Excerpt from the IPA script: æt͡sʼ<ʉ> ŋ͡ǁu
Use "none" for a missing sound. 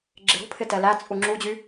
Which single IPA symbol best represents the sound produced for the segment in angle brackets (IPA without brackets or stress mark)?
u